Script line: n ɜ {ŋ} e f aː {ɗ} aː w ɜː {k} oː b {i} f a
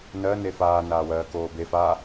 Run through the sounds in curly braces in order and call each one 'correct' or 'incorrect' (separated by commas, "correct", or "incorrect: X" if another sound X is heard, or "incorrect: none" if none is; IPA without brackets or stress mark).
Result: incorrect: n, incorrect: n, correct, incorrect: e